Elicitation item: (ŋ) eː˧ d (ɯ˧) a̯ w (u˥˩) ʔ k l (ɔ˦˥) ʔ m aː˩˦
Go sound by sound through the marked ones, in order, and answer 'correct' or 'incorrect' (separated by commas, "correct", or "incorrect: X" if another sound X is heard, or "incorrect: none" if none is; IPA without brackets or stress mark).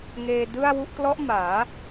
correct, incorrect: ɯ˥˩, correct, correct